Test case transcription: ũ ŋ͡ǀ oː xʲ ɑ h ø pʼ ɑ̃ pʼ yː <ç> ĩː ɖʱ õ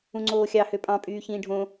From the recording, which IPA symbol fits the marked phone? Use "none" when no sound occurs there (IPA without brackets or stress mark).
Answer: ç